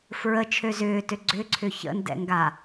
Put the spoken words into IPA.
f ɹ ə t͡ʃʰ ø z ʏː t ø ɡ͡ǀ ʏ ǀʰ ʏ ç ə̰ n d ɛ̰ ŋ ɡ a

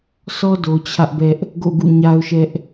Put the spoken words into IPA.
s ɔ˦ d o˨ t͡ɕʰ ä˦ ʔ b ɛ˦ ʔ | ɡ o̰˦˨ ɡ ṵ˦˨ ɲ a˦ ʊ̯ ʃ ɛ˦ ʔ

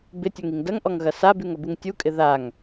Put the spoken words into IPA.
b ɪ tʲ o ŋ i ŋ d ɐ ŋ ʔ ɔ ŋ ɣ ɐ s a b y ŋ ɐ b u ŋ tʲ u kʼ ɪ ð a ŋ

